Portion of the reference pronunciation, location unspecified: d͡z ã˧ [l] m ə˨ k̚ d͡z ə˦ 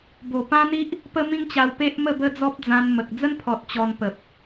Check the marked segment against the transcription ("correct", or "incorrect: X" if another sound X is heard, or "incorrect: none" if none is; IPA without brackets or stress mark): incorrect: n